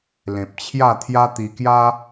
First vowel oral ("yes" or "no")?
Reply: no